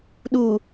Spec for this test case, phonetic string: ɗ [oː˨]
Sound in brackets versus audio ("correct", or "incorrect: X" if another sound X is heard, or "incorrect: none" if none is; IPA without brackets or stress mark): incorrect: uː˨